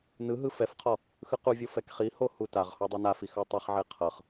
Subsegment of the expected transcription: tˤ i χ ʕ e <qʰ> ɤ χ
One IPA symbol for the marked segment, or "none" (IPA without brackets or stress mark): qʰ